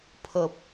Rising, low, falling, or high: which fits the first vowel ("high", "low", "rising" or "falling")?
high